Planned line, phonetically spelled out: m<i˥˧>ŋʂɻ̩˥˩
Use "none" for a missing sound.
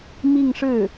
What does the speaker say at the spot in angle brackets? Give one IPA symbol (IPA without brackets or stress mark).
i˥˧